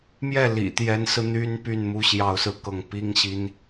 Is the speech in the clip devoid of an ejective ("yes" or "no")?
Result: yes